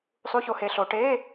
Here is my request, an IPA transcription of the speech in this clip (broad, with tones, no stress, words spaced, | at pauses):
sˤu˧˥˧ço˨˦he˨˦ɬo˨˦ ʈe˧˥˧